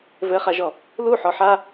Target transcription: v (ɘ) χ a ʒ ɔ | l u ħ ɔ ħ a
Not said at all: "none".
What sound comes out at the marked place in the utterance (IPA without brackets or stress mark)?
ɘ